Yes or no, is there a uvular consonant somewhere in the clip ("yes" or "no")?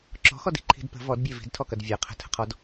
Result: yes